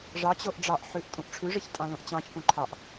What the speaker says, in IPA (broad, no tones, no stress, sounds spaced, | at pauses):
ʐ ɑ t͡ɕ o ʔ ɖ͡ʐ ɑ ʔ ħ ʉ ʔ tʼ ũ ʔ ʈ͡ʂʰ ʉ ʐ i ç tʼ ɑ̃ l õ ʔ t͡ɕ ɑ̃ ç p ũ ǃʰ ɑ ʔ